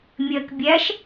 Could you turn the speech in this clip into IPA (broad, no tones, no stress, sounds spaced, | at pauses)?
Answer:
mʲ ɜ k bʲ æ ʃ